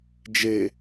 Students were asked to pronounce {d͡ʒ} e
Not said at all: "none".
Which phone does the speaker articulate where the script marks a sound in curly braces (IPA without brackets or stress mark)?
d͡ʒ